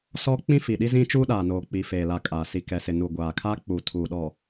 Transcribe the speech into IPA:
s ɔ˦ k͡p ĩ˦ f i˨ ɗ i˦ z ĩ˦ t͡ʃ uː˦ ɗ aː˨ n oː˨ k͡p i˨ f eː˨ l a˨ kʼ aː˨ s i˨ k ɛ˨ s ɪ˨ n u˨ ɡʷ aː˨ kʰ a˦ k͡p uː˨ tʰ uː˨ ɗ ɔ˨

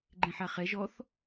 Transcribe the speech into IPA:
ɡ͡ǃ ẽ ħ a χ ɛ ʒ ɔ θ

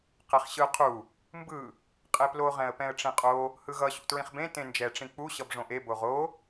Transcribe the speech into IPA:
q ɛ χ ɕ ɯ qʰ u | m b ɯ | qʼ e p l o ʁ ɛ̃ ə̯ p ɛ̃ ə̯ ʈ͡ʂ ĩ qʼ o | h ɯ ɣ ʌ ɕ ṵ t ɹ ĩ χ b ẽ t ẽ n d͡ʒ ɛ ʈ͡ʂ ĩ k͡p u ɕ ʌ b ʐ õ ʔ e b o ʁ o

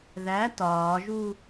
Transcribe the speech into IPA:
ð æ t ɒː ʒ u

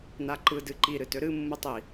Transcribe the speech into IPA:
n a ǃ ɯ d ɨ ǃ i ɾ ɨ t ø ɾ ɨ mː ɯ tˤ i

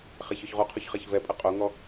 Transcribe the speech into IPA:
χ ɛ ç ɔ ç ʁ u qʰ u ç χ ɛ ç v ɛ pʼ ə qʼ o ŋ ɔ

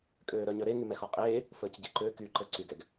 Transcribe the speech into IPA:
kʼ øː ɾ œ ɲ œ ɾ e ŋ y m ɛ x ɔ qʼ eː | f əː c ɟ e ǃ ø k y ǃ ə ǀ y ɡ ɛ ɡ

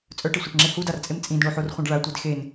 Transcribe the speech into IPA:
t͡sʼ œ ʈ e sʷ a ʈ ŋ͡ǁ e h u d a r t͡sʼ e m t͡sʼ ĩ d ɳ o ħ o r χʷ ã ɖ ɭ a tʷ e d x e n

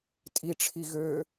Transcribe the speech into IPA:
tʼ i ʈ͡ʂʰ i ɣ ø

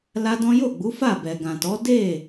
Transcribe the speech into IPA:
l a˦ d ɔ̃˦ j o˦˨ ɡ͡b u˨˦ f a˦˨ b ɛ˨ ɡ ã˨ t ɔ˨˦ d e˦˨

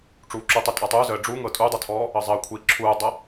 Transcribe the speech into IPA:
ʈ͡ʂ uː ǁ u tˤ i tʼ a tˤ uː z əː ɖ͡ʐ u ŋ ɤ tʼ u dˤ œ tʰ ɔː | ɤ zˤ əː kʷʰ iː ǁʰ uː dˤ ɤ

